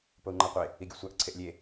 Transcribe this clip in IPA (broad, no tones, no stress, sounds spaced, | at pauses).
p o u̯ ŋ͡ǃ a qʷ e | i ɡʲ u sʷ a ʔ ǀʰ e ʔ lʲ e